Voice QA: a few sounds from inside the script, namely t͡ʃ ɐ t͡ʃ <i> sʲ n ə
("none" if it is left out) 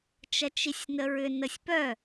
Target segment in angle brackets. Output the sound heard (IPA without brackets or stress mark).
i